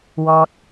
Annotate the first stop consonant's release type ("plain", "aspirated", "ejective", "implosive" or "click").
plain